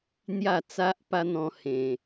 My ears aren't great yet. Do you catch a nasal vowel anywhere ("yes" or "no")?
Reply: yes